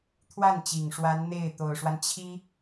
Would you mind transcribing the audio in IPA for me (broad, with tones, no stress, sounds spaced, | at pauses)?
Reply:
t̪ʰ w a˥˩ n t͡ɕ i˨˩ ŋ ʂ w a˧˥ n n̪ e˥˩ ɪ̯ t̪ o˨˩ ʊ̯ ʂ w a˦ n t͡ɕʰ i˥